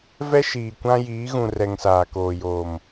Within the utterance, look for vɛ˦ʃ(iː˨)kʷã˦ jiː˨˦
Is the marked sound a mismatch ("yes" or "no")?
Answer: no